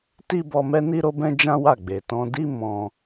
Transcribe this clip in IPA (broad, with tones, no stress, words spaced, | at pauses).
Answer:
ti˦bɔ˧mɛ˦ ni˦ɾo˦bɛ̃˦ d͡ʒã˦wa˦˨ɡ͡be˨ tɔ̃˧di˦ mɔ̃˧